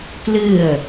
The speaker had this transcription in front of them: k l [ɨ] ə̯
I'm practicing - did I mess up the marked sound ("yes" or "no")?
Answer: no